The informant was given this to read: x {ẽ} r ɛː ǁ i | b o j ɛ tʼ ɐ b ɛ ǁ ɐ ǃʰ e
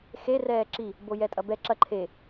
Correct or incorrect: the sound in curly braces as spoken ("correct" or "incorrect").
incorrect